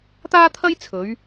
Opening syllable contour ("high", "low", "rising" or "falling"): high